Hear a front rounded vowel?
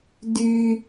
yes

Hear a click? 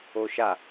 no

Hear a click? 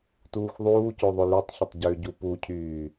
no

